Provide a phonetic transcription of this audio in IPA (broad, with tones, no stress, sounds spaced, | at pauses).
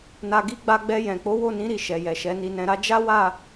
n a˧ ɡ i˦ ɡ͡b a˧ ɡ͡b ɛ˧ j ɛ̃˨ k͡p o˨˦ w o˦˨ n ĩ˨˦ ɾ i˦˨ ʃ ɛ˨ j ɛ˨ ʃ ɛ˨˦ n i˧ n ɛ̃˧ ɾ a˦ d͡ʒ a˦ w a˦˨